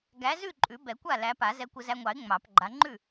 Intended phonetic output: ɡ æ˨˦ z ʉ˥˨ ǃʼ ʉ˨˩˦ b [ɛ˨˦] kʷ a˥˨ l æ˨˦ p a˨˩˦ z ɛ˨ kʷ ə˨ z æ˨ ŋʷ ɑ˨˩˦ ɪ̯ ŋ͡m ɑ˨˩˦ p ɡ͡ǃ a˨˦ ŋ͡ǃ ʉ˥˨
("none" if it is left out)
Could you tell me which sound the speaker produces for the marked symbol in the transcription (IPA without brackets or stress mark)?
ɛ˨˩˦